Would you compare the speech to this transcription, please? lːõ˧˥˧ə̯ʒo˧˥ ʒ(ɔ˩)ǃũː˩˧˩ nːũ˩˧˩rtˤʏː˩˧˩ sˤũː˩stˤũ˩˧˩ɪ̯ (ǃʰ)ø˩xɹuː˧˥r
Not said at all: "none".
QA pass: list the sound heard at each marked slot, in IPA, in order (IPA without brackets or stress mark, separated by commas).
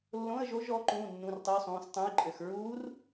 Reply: ɔ˧˥, ǃʼ